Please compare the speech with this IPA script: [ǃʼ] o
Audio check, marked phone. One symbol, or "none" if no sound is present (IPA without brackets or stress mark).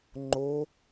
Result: ŋ͡ǃ